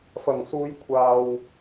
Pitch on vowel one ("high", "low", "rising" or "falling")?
low